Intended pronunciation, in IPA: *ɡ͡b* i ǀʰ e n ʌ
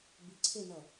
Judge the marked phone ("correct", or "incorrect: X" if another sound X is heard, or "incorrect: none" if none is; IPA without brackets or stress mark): incorrect: b